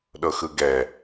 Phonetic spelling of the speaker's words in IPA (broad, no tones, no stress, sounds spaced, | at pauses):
ɗ ɤ x ɯ ɡ ɛ